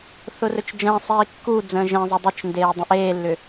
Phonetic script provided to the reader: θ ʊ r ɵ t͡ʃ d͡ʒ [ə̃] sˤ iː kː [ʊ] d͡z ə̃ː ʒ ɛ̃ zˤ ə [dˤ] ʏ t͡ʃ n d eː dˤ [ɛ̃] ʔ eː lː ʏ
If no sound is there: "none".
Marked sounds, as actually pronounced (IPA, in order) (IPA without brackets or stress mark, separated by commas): ə̃ː, u, dˤ, ə̃